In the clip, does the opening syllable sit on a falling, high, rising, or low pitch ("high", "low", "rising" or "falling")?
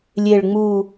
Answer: low